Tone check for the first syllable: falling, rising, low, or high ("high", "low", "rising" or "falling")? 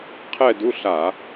falling